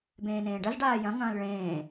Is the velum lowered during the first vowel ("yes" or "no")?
yes